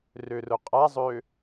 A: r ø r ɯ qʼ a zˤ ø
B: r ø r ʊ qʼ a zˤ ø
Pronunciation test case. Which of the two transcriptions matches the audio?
B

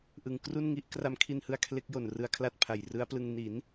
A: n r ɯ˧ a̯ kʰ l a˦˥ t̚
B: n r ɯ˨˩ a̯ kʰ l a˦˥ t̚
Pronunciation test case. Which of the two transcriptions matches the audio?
A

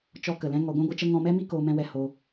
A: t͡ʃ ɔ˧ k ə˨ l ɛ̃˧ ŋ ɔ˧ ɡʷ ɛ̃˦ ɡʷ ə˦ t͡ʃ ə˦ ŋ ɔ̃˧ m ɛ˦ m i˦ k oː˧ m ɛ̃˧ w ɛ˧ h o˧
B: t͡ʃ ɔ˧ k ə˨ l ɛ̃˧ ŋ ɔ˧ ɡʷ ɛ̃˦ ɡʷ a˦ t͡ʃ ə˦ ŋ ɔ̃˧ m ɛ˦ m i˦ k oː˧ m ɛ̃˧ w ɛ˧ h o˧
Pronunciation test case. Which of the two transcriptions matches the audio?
A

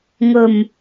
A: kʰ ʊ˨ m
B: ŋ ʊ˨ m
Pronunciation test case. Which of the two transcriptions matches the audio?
B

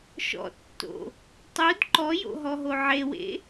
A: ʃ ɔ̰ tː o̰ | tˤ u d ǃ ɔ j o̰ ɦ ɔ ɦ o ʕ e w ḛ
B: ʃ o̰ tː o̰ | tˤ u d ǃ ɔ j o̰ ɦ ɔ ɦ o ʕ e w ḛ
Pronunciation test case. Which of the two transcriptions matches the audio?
A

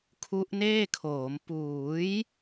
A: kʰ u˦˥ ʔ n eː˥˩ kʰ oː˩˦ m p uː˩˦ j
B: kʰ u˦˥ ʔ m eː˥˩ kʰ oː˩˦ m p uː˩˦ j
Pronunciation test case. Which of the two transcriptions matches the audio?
A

